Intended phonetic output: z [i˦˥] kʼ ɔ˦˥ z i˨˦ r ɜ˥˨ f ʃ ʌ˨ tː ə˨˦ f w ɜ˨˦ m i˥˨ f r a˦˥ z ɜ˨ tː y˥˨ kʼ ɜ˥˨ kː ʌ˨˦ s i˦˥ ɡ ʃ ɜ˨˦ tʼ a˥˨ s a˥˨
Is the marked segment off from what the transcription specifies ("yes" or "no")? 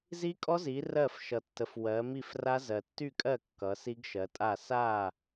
no